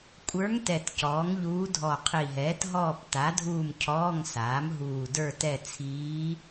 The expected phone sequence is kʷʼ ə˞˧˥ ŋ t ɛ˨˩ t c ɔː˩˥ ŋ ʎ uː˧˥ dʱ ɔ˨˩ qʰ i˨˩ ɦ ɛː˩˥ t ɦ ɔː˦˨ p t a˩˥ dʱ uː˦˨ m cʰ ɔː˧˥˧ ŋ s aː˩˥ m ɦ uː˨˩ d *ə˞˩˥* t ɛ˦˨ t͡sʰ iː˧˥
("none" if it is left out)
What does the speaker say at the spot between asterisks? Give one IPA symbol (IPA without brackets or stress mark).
ə˞˦˨